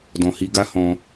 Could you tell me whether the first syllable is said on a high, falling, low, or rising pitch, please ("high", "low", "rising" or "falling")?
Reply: low